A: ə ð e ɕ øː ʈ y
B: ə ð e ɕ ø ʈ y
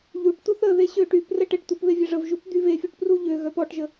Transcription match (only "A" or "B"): B